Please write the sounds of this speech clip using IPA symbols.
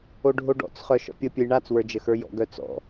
oɖʱoɖɔ̰t͡sχœ ʃɔ̰pʲəpʲɵj ɳat͡swə˞ d͡ʒəxə˞jɔ̰ɡœ t͡sɔ̰

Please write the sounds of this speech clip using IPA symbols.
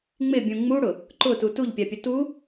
ŋ͡mɪbʲũ ŋ͡muɽʊ | ǃʊtu tuʎpʲapʲʊ tu

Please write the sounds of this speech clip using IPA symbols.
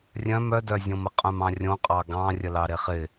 rʲœ̃m œdœzʲõmə qʼœ̃mɑ̃rʲõqʼɑ ɡɑ̃rʲə lɑɾeχɪ

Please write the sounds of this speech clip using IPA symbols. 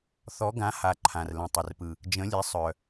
θɔ˨˥ɡã˨˥ha˨˩ ǃʰã˨˩rlə̃˨˩tˤə˨˩rpɯ˨˩ | d͡ʒə̃˨˥lʲe˨˥ sˤœ˨˩

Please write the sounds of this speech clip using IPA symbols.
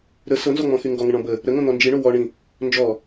ɾə sɤnzɔŋ͡mɔ̃xy ŋɡɔŋə̃ɳɔ̃ bə | ɾə ŋõn̪ɔnd͡ʒiɳo wɔɳĩ | nd͡ʒɔ

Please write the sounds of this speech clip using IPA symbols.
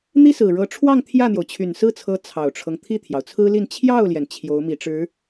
n̪i˥sɹ̩˨˩ɻɤ˧˥ ʈ͡ʂʰwɑ˥˧ŋ t̪ʰjä˥˩n̪jo˩ʊ̯t͡ɕʰy˨˩n sɹ̩˥˩t͡sʰɤ˧˥ t͡sʰɑ˨˩ʊ̯ʈ͡ʂʰɤ˦ŋ t̪ʰi˥˩t̪ʰjɑ˩ʊ̯t͡sʰɹ̩˥li˥˧n t͡ɕʰjɑ˥˩ʊ̯ljɛ˩n t͡ɕʰjo˧˥ʊ̯ mi˧˥ʈ͡ʂɻ̩˧˥

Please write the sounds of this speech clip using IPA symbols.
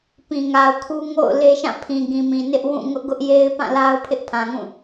pĩ˨ŋa˨ʊ̯kʰu˦ ŋo̰˦˨ʊ̯ le˦ʃã˦˨ pʰĩ˨ɡĩ˨mĩ˨ nɪ˦ʔ wũ˦˨ ŋʊ˦ʔɡʊ˦ʔje˦ɪ̯ pã˦˨la˦ʊ̯pʰɪ˦ʔ pʰã˨ŋũ˦˨

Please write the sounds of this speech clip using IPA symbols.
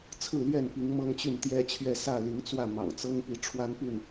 t͡sʰɹ̩˥˨lɥɛ˥˨npi˨˦ŋ mɤ˦ŋt͡ɕy˥˨nt̪jɛ˦t͡ɕʰɥɛ˥˨ sä˥˨li˨˦ŋt͡swä˥˨ mɑ̰˨˩ŋt͡sɤ˦ŋpi˨˦ ʈ͡ʂʰwa˦npy˥˨n

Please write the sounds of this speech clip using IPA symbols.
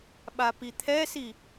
ɓapit̪ʰɛsi

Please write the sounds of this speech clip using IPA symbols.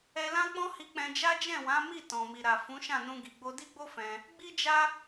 ɛ˧lã˦k͡pɔ̃˦ hi˧ k͡pɛ̃˧d͡ʒa˦ d͡ʒɛ̃˦˨wã˨˦ mi˦˨tɔ̃˨ mi˨ɾa˨ fũ˨˦ʃã˦˨nũ˧ɡi˨ ɡ͡bo˧di˦ɡ͡bo˦ fɛ̃˧ | ɡ͡bi˦d͡ʒa˦

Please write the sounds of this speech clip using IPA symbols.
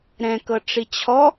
ɾɛ̃kɤ ʈ͡ʂit͡ɕʰɔ

